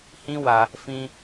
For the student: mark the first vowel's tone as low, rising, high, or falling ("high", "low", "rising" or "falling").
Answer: high